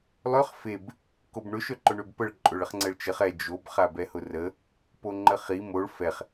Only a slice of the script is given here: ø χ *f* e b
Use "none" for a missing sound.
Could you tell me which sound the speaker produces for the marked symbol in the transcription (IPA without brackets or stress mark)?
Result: f